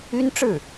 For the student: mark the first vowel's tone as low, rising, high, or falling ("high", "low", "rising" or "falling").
high